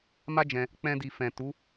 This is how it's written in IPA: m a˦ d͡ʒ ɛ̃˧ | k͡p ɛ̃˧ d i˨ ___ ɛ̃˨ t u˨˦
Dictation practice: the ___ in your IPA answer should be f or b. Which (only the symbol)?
f